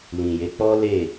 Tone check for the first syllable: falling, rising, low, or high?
low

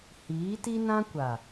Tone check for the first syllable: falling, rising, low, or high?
rising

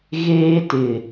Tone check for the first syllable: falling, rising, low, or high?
high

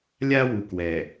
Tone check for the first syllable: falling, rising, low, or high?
high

